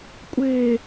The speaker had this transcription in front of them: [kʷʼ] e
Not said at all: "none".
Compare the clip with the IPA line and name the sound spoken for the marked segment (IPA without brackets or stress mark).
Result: kʷʼ